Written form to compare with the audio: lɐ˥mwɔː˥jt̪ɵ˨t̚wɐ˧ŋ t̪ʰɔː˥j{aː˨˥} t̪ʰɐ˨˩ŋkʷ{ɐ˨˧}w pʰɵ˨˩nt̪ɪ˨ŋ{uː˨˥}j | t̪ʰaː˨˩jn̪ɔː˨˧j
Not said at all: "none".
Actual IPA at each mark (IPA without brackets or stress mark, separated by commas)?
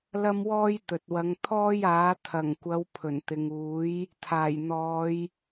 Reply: aː˨˥, ɐ˨˧, uː˨˥